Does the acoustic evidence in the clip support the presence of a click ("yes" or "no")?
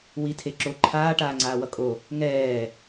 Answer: yes